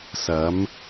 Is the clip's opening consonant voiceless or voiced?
voiceless